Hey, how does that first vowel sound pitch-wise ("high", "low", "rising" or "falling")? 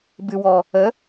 low